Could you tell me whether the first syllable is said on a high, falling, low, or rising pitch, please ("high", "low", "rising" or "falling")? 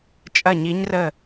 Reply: falling